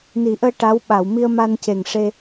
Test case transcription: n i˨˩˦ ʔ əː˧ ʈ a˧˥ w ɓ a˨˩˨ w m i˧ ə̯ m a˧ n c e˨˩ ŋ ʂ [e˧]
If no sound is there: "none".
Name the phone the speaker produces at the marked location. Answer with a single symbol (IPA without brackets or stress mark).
e˧